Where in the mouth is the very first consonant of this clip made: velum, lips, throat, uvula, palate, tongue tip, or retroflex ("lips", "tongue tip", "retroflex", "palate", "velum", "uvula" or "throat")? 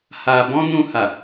throat